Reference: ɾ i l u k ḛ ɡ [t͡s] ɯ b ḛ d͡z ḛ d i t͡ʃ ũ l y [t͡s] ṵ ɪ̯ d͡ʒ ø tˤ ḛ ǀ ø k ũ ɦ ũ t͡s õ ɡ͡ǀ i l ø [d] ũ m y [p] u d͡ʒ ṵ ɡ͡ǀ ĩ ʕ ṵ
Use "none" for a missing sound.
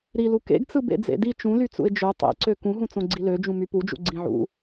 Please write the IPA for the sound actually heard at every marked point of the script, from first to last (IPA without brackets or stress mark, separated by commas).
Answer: t͡s, t͡s, d͡ʒ, p